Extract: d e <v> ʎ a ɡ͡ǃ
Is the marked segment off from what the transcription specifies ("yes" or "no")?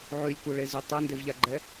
no